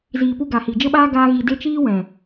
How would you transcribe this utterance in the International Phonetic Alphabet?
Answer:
z iː˧ p u˦ ɡ a˨ h i˨ d͡ʒ ə˦ ɓ aː˦ ɡ aː˦ ɣ i˧ d e˦ t͡ʃ iː˦ w ɛ̃˨

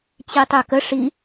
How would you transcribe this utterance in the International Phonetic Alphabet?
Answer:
t͡ɕ i tˤ ø k ə ʂ i

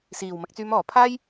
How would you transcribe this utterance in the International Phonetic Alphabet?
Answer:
s iː˨˩ w m ɐ˨ k̚ t͡s yː˨˧ m ɔː˨˩ pʰ aː˥ j

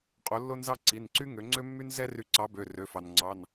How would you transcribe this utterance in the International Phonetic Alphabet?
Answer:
qʼ o˨˥ lː o˥ n z ɑ˥ ǀ i˩˧˩ n ǀ y˥ ŋ ø˨˥ ŋ͡ǀ ø˥ mː y˥ n z ɛ˥ r y˨˥ ǀ ɑ˨˥ b ø˩˧˩ r ø˩˧˩ f ɑ˩ n ŋ͡ǀ ɑ˩˧˩ n

